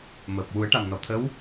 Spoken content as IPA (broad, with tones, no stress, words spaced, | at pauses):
məː˨˩p̚ wu˨˩˦ə̯ʈa˨˩mnɔ˨˩˨t̪ʰə˧˥w